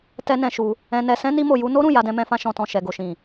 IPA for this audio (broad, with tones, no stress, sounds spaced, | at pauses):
t ɛ˦ n ɛ̃˧ ʃ u˧ | ɛ̃˧ n ɛ˧ s ɛ̃˦ n i˦ m o˧ j u˦ n o˦ ɾ ũ˦˨ j a˧ d ɛ̃˧ m ɛ̃˧ f ã˧ ʃ ɔ̃˨ t ɔ̃˨ ʃ ɛ˨ ɡ o˨ ʃ ĩ˨